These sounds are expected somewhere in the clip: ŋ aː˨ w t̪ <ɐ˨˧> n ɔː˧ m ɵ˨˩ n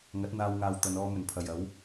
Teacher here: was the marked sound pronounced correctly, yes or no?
yes